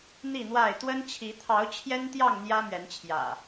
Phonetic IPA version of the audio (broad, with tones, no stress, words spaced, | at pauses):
n̪i˥˨n̪wa˥˨ɪ̯ t̪wə˦nt͡ɕʰi˨˦ t̪ʰɑ˨˦ʊ̯ t͡ɕʰjɛ˦nt̪jɑ˥˨ŋ n̪jä˦mɥɛ˨˦nt͡ɕʰjä̰˨˩